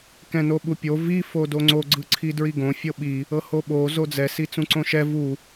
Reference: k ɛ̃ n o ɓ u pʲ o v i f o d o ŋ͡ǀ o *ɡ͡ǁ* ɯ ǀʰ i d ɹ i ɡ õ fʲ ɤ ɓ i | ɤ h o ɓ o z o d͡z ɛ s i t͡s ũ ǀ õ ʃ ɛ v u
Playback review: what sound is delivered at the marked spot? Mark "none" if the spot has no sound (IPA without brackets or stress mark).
ɡ͡ǀ